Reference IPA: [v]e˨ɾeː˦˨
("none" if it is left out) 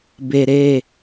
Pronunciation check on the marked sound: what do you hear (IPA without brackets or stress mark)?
b